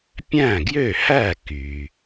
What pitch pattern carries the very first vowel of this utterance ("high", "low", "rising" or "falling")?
falling